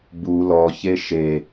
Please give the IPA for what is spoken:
b u l ɔ ç e ʃ e

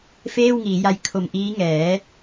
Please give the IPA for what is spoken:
f eː˥˩ w ŋ iː˩˦ j a˧ j kʰ o˨˩ m ʔ iː˦˥ ŋ ɛː˩˦

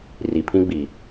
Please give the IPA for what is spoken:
r i˨ pʰ ĩ˦ ɡ͡b i˨

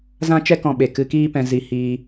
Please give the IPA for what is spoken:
z ã˦ t͡ʃ ɛ˦ k ɔ̃˧ ɓ e˨ k ɨ˧ k iː˦ p ɛ̃˧ z i˧ h iː˧

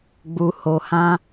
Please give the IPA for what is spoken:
ɡ͡b u˧ h o˧ h ã˦

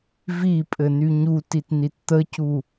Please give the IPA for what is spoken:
v i pʼ ɘ n y ɲ u t i t n i t t̪ ə c u

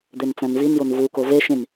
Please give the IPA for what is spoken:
d̪ e n t͡s æ̃ n v i n j o n v u k o v e ʃ ĩ n

